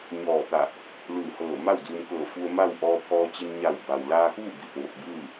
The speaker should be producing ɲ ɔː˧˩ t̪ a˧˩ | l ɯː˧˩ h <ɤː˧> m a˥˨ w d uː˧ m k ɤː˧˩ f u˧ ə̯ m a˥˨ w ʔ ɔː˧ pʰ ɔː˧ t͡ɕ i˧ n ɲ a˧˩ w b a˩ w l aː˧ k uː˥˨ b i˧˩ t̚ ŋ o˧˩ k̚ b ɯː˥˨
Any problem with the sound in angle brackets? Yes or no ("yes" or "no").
yes